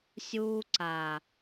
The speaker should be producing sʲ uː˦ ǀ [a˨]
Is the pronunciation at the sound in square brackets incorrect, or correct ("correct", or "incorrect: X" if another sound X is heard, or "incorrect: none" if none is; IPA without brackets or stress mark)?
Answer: correct